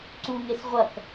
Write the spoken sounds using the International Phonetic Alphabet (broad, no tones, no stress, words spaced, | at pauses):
ǀuŋes ʁʷɐk